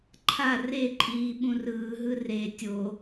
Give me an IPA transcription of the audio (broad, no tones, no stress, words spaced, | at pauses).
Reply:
ǃʰa reǃʼiː ɓũrɯːɦɯ re tʲo